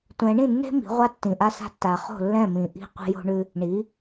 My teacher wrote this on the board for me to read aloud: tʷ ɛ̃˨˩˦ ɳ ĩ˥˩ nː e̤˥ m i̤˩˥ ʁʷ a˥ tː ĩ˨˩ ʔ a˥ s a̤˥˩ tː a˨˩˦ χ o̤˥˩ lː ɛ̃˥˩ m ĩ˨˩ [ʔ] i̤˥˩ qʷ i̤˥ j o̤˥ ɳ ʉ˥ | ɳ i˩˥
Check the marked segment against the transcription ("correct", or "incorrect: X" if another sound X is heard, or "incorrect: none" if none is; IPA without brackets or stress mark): correct